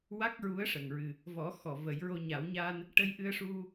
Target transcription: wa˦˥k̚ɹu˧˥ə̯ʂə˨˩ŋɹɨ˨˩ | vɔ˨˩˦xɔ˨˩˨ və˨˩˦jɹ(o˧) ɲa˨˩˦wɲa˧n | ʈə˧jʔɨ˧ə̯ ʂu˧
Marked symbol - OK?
yes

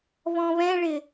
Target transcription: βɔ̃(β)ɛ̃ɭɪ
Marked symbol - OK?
yes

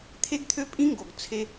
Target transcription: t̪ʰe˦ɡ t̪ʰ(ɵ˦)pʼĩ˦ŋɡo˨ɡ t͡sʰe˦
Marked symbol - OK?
no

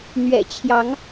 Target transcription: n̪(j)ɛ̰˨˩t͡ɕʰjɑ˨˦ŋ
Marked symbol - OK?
no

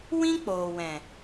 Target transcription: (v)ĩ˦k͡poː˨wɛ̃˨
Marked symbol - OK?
no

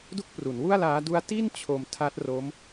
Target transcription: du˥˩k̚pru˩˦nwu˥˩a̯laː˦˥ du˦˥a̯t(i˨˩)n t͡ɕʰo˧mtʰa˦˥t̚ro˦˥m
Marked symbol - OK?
no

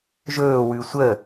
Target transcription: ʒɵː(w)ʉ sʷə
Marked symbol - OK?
yes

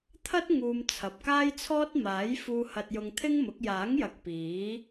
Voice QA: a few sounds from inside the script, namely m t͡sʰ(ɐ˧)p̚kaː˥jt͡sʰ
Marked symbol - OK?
no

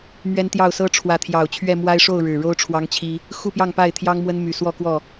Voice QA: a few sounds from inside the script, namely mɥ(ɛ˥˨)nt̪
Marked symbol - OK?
no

